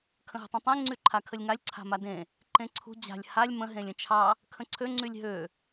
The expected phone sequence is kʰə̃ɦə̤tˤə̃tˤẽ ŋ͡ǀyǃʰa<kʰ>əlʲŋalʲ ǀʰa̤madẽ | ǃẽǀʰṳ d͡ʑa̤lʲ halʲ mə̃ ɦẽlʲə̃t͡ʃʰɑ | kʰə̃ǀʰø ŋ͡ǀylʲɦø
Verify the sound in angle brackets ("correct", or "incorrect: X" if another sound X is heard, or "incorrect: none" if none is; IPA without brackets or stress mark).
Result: correct